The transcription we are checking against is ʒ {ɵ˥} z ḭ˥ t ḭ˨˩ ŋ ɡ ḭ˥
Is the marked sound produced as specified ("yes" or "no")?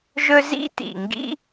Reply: yes